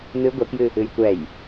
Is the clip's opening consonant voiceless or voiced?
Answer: voiced